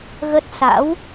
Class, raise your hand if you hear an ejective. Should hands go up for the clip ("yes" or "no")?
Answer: no